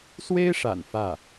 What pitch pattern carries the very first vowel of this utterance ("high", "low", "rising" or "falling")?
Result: high